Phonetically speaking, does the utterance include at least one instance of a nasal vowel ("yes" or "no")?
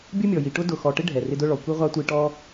no